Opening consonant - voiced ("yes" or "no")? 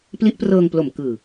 no